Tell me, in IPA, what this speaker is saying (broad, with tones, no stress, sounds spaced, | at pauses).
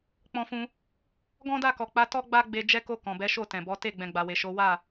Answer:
k͡p ɔ̃˧ f ũ˧ | ɡ ɔ̃˦ d a˦˨ k ɔ˨ k͡p a˨˦ t ɔ˦ ɡ͡b a˦ ɡ͡b e˧ d͡ʒ ɛ˧ k o˧ k ɔ̃˨ b ɛ˨˦ ʃ o˦˨ t ɛ̃˨ b ɔ˨˦ t e˦˨ ɡ͡b ɛ̃˨ ɡ͡b a˨ w e˨ ʃ o˨˦ w a˦˨